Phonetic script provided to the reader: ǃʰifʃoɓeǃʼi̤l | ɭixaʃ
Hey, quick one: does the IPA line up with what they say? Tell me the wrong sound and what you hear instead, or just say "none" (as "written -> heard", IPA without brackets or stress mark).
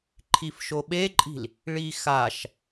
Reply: none